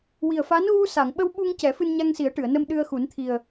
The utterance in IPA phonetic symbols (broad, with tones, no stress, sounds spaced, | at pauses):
w i˨˩ ə̯ f a˧˥ n ɣ u˧ s a˨˩˨ ŋ ɓ ə˧ w ɓ u˧ ŋ c ɛ˨˩˦ f ɨ˧ n ɲ a˧ ŋ s i˨˩˦ ə̯ ʈ ɨ˨˩˨ ə̯ n ə˧ m ɗ ɨ˧ ə̯ x u˨˩˦ n t̪ʰ i˨˩ ə̯